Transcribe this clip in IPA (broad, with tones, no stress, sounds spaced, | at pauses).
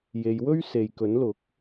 j e˨˧ j w ɵ˥ ɥ s e˨ j k ɵ˨˥ n l ʊ˨˥ k̚